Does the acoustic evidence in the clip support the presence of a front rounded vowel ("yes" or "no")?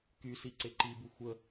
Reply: yes